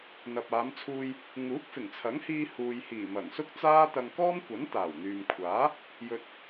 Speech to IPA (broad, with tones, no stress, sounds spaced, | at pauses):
n̪ ɐ˨ p̚ aː˨˧ m t͡sʰ uː˧ j | ŋ uː˨˥ k̚ f ɪ˨˩ ŋ t͡sʰ ɐ˨˥ ŋ h iː˧ h uː˨ j h iː˨˩ m ɐ˨˩ ŋ s ʊ˥ k̚ t͡s aː˥ t̪ ɐ˧ ŋ k ɔː˥ m kʷ ɐ˨˥ n t̪ aː˨˩ w n̪ yː˨ m kʷʰ aː˨˥ | j ɵ˨ t̚